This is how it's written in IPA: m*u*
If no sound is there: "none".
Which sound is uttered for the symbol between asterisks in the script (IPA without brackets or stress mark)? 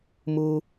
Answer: u